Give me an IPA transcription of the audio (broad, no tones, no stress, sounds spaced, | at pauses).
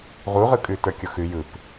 ʁ u ʁ ɯ kʼ ʉ t ə˞ kʲ ʊ x ʉ j ɯ p